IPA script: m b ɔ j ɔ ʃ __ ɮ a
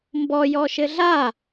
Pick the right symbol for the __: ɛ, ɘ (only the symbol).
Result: ɘ